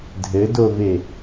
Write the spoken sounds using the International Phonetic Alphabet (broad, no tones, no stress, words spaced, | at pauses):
dʱɘdove